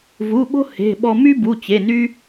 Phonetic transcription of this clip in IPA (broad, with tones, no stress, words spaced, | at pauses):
vu˩˧˩ɓo̤˥ he̤˩˧˩ɓɔ˧ my˥bu˩˧˩t͡ɕe˩˧˩ ny˥